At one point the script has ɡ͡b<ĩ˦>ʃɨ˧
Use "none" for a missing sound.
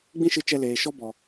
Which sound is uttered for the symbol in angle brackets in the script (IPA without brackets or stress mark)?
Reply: ĩ˦